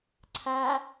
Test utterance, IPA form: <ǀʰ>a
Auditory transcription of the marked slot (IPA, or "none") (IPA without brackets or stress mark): ǀʰ